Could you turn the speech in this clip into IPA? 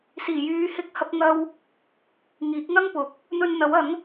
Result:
siː˨˩jyː˨˧hɪ˧k̚ hɐ˧p̚ŋɐ˧w | ŋiː˨˥k̚ŋɐ˥ŋpʊ˨˥k̚ | n̪ɵ˧nn̪ɐ˨˥wɐ˨˥ŋ

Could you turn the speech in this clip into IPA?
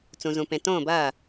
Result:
t͡sũ˩zũ˩pẽ˩ tõː˥˩bɐː˥˩

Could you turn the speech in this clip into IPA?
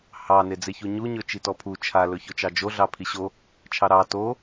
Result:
hɑ ned͡zeçuɲu ɲɵt͡ʃitɔpʰu t͡ʃʰa lɵçɵt͡ʃɑd͡ʒo ɮɑpʰiɕo | t͡ʃʰɑɾɑ to

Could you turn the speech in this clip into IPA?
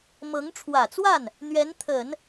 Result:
mɤ˧˥ŋʈ͡ʂʰwä˨˩t͡swa˥˩n | n̪ɥɛ˧˥nt̪ʰə˨˩˦n

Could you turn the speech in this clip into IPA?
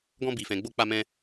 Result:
ɡɔ̃˦bi˧fɛ̃˧ɡ͡bo˦ k͡pa˦mɛ̃˦

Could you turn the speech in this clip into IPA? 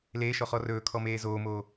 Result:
leːʃɔχɔ rɵːkʰɔmeː zoːmoː

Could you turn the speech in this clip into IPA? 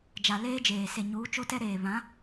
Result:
d͡ʒa˨leː˦d͡ʒeː˨ se˨ ɲuː˨˦t͡ʃo˦tɛ˦ ɾeː˨βã˨˦

